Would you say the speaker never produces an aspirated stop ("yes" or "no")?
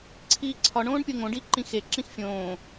no